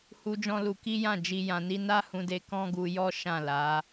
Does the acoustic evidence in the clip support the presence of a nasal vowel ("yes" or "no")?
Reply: yes